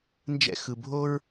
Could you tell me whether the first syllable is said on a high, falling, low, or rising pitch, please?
high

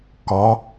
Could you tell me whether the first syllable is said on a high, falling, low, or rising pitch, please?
rising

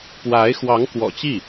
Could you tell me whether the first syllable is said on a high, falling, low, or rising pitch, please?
rising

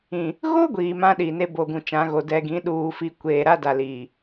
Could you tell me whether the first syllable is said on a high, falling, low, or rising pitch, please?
low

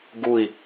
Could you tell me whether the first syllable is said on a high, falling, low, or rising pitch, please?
low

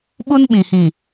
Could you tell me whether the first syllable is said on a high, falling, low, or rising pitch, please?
high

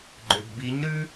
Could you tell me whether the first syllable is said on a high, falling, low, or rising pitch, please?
low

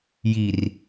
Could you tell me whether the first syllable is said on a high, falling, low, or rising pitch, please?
low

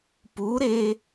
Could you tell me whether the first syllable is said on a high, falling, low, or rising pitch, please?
rising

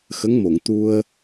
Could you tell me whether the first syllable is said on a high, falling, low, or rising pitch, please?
rising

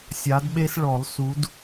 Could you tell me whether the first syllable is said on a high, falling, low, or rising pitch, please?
rising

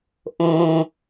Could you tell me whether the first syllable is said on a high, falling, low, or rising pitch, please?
low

